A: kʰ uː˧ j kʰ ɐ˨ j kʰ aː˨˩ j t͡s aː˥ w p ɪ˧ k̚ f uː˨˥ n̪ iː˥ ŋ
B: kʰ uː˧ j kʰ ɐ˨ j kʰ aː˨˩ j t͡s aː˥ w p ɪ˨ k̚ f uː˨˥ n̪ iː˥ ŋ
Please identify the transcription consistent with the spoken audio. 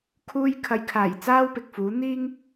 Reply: B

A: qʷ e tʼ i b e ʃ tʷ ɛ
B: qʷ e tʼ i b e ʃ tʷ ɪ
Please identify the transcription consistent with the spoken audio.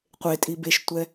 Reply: A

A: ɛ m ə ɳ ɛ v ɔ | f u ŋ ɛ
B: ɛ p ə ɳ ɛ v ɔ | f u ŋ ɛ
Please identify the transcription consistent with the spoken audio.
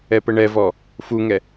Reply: B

